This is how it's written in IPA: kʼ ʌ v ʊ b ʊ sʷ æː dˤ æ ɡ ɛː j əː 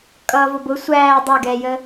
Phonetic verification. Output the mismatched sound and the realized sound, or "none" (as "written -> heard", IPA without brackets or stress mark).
none